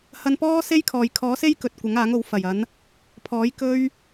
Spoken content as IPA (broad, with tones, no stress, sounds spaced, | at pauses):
h ɐ˧ n p ɔː˥ s e˥ j kʰ ɔː˨ j kʰ ɔː˨˥ s e˥ j k ɵ˨ t̚ kʷ ɐ˨˥ ŋ aː˨˥ ŋ o˨˥ w f ɐ˨˩ j ɐ˨˥ n | pʰ ɔː˨˥ j k ɵ˥ ɥ